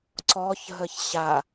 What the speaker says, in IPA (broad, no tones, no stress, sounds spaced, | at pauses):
ǀ ɔ ç ɦ ə ç ɕ a